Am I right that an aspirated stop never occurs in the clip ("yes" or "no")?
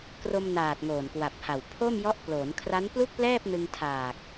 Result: no